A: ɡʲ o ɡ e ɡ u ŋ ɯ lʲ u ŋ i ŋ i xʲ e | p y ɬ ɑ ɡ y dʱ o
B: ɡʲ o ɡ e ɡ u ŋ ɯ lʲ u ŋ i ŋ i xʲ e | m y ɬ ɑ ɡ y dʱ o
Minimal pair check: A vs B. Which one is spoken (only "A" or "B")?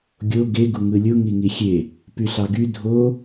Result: A